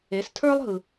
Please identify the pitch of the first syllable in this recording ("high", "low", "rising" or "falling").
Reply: rising